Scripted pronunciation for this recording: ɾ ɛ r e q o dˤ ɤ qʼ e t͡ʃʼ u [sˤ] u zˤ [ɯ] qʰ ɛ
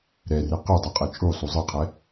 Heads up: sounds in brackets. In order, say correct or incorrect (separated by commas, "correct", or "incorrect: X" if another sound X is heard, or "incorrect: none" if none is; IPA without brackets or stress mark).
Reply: correct, correct